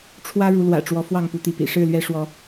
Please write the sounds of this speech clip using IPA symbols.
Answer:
ʈ͡ʂʰwä˦ɻu˨˦ lwä̰˨˩ʈ͡ʂwɔ˨˦ fwɑ˥˨ŋpu˨˦t̪i˨˦pḭ˨˩ ʂɻ̩˥˨lɥɛ˦ ʂwɔ˦

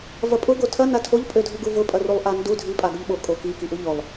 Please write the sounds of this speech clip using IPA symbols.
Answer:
vɐpʼʊ ɡotʰɐ natʰoʎ pʼødʱʊɡuvʊ pʼɐrulˠʔandu dʱi pʼaɡʊʎɓo kʼoki kiʔuʎʊlˠ

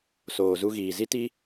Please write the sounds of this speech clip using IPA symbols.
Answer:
soː˨zu˧ɣiː˨ zi˦ti˦

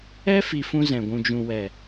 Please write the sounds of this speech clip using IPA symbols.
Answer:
ɛ˦ fi˧fũ˦zɛ̃˨ ɡʷũ˨d͡ʒũ˨wɛ˨

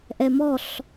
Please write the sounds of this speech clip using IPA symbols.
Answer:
ʔɛmɔɬ

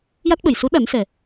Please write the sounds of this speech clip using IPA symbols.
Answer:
ja˦˥t̚ɓə˨˩j su˧˥ ɗa˨˩˦nsɛ˨˩

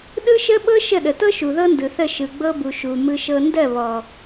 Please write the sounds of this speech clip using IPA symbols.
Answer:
ɗɯ˦ʃə˦ɓɤ˦ ʃə˦˨ɗə˨tɤ˦ ʃu˨ðɤ˦ndɯ˨θə˦˨ ʃɯ˨ɡ͡bɤ˧bu˨ ʃu˨ mɯ˧ʃɤ˧ ndɜ˦˨βɔ˨

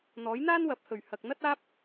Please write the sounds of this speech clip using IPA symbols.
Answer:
n̪ɔː˨˥jn̪aː˥nwɐ˨˥p̚ hɵ˨˩ɥ hɐ˨k̚ n̪ɐ˥t̚aː˥p̚

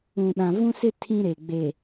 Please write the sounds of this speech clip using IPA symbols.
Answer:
ũ˨ɗã˨ vũ˦sɪ˦ tʰĩ˦ɾe˨ ɡ͡be˨

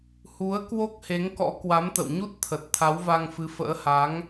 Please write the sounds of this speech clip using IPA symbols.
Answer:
hu˨˦ə̯ kwo˦˥k̚he˨˦ŋkɔ̰˧˥ kwa˨˦mt̪ə̰˧˨wɲu˦˥t̚t̪ʰə˨˩t̚ t̪ʰa˨˦wva˧ŋfɨ˨˦fə̰ː˧˥ ha˨˦ŋ

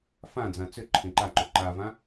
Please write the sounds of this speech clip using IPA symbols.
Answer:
fãd͡zã t͡sʏ ǃʰẽǃaǃʏ ǃavã

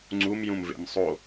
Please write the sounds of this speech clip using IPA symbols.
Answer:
ŋ͡ǀumjũmvḛm sˤo

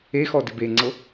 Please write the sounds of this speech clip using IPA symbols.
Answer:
exɔ dɪbeŋ͡ǀɤ

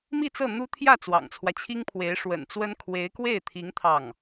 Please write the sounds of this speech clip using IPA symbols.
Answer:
mi˥˧t͡sɤ˥˩ n̪u˥ t̪ʰjä˥˩ t͡swɑ̰˨˩ŋt͡sʰwä˦t͡ɕʰi˥ŋpʰwe˧˥ɪ̯ ʂwə̰˨˩nt͡swə˥n kʰwe˧˥ɪ̯kwe˥˩ɪ̯t̪ʰi˧˥ŋ t̪ʰɑ˥˩ŋ

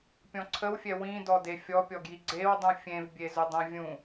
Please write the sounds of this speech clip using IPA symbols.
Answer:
pʲɔ̃ǀʰəwfʲɛ wĩdɔde fʲɔpʲɔɡji ɡ͡ǀewdˤũ fʲẽvbʲezʊ dˤẽvʲũ

